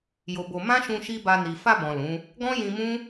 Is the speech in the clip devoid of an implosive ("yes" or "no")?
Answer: yes